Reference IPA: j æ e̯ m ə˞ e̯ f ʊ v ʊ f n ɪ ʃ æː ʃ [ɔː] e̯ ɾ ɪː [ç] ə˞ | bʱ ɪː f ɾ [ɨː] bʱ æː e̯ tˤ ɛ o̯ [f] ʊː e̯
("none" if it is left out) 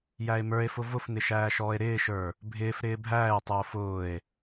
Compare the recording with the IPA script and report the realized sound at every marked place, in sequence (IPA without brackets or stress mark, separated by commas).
ɔː, ʃ, ɪː, f